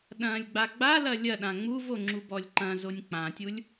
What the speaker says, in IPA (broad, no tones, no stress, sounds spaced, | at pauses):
ɗ ɐ̃ lʲ ɡ͡b a ɡ͡b a l ɐ lʲ ɐ ɗ ã ŋ͡m u v o ŋ͡ǁ u b ɔ lʲ ǃ ɐ̃ z o nʲ k͡p ã tʲ u lʲ